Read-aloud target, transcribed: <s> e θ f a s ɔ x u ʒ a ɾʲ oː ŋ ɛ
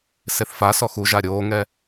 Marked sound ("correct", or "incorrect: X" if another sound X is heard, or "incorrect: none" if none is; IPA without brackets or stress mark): correct